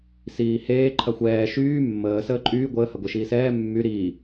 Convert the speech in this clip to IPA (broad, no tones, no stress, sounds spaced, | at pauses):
s iː h eː ǃʰ ɐ xʷ ɛː ʃ yː mː əː s əː ǃʼ yː ɡʷ əː h ɐ ɡʷ e ʃ iː s ɛː mː y ɾ iː